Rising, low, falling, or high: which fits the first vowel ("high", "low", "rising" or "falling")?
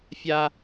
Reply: high